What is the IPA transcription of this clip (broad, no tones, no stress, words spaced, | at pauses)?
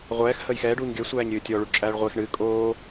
ʁʷɛːx həːjxɛːɖ uːɲɡʲəː sʷæːɲɾʲɨːtʲɔ ɭuɖt͡ʃʼæːɭʁʷex ɳɨː kʼoː